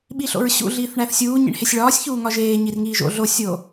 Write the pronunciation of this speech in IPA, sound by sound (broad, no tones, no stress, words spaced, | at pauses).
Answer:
ɓiɬo̰ɹɕṵ ɮiːθɳæθsʲuː ɲḭɳhesʲɭɒːsʲ çuːŋɒʒeː ɲirŋiːʒo̰ ɮo sʲo